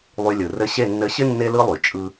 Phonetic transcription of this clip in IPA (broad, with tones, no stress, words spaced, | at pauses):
lˠy˧lʲɯ˨ rɘ˧ɕe˦˨ nːɘ˧ɕɪ˦ nːe˦lɯ˦lˠy˨ t͡ʃʼɯ˧